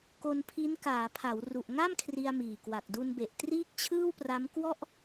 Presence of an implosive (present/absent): absent